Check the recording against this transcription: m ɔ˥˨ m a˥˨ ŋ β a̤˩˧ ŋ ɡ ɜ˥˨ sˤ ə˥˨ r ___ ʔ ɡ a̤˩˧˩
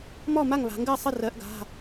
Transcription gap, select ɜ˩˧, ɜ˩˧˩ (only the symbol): ɜ˩˧